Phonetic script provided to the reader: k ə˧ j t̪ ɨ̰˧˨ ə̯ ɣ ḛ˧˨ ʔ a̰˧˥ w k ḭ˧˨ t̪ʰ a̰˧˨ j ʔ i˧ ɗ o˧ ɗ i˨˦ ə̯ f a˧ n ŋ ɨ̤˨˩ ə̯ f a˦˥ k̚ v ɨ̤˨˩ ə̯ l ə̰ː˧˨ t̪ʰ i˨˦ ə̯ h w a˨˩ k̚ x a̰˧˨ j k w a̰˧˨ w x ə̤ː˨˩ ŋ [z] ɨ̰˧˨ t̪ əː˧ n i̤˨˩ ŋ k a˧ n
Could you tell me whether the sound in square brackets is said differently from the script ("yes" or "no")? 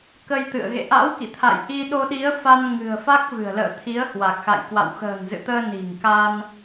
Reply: no